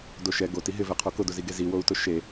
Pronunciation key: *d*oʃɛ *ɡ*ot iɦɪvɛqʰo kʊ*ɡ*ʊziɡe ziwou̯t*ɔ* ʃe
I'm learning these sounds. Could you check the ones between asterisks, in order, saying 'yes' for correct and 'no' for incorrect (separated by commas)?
yes, yes, no, no